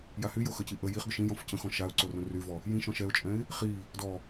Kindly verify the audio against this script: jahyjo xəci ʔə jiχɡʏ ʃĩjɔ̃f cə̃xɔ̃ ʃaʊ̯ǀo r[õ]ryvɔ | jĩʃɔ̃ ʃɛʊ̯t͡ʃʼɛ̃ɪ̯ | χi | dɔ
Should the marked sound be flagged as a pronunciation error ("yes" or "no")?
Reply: no